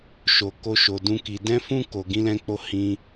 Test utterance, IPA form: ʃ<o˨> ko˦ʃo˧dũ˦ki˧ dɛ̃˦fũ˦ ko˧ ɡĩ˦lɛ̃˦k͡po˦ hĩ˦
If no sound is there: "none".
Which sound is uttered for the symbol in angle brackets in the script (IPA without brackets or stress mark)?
o˧